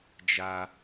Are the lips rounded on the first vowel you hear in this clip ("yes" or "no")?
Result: no